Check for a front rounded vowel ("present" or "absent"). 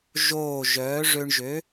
present